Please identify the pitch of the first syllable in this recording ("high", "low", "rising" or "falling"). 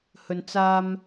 low